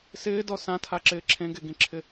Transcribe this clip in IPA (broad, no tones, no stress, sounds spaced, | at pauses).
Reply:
s ɪː d ɔ s ã tʰ a ǁ ɪː ǁʰ ẽ ɡ e ɡ ĩ ǁʰ ɪ